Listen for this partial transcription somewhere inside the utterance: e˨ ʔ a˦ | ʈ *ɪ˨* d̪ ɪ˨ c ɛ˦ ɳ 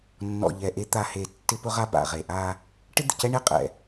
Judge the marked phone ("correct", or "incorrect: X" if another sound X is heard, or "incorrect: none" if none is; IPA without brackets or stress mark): incorrect: ɪ˦